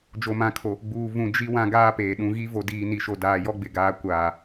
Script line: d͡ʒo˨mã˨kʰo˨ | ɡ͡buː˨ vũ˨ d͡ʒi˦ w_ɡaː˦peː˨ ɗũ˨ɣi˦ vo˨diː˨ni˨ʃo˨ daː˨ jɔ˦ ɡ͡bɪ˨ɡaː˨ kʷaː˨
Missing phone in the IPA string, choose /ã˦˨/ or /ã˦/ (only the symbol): ã˦